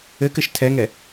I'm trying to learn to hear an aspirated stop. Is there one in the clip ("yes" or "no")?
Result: yes